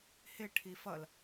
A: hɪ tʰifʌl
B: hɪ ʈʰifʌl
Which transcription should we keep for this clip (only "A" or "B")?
B